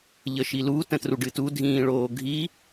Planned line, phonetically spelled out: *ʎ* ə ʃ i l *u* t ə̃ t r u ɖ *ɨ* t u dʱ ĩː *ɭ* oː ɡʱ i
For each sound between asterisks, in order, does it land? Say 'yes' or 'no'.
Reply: yes, yes, yes, yes

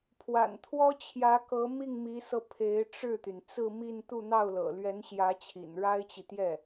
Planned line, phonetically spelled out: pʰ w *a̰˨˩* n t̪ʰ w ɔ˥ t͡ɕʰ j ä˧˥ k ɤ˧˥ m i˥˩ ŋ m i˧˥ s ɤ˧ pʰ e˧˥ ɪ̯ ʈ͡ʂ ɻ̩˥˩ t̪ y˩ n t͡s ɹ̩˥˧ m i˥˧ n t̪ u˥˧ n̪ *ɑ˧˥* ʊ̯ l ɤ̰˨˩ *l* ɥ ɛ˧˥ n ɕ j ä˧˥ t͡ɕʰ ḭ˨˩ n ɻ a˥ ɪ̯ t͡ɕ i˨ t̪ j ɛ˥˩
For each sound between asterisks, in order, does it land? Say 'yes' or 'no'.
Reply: yes, no, yes

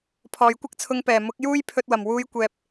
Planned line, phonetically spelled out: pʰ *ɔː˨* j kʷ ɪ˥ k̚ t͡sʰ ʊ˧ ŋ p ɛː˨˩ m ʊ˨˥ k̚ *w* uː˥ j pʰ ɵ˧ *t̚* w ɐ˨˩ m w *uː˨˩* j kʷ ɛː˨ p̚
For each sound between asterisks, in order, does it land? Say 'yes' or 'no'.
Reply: yes, no, yes, no

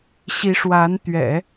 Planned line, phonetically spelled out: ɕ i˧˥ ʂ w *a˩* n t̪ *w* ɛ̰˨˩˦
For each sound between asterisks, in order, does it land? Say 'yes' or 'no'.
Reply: no, no

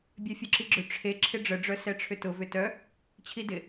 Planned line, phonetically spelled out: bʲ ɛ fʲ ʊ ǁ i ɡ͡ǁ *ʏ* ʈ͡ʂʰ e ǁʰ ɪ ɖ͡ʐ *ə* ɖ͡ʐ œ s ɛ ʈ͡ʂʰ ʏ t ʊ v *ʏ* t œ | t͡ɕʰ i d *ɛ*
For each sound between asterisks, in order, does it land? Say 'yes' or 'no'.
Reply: yes, yes, yes, no

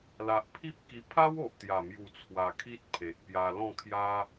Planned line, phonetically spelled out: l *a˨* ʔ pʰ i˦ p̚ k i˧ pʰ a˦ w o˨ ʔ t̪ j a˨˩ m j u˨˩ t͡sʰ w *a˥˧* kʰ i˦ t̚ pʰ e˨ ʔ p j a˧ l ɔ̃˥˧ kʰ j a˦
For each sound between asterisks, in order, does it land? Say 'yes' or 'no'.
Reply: yes, no

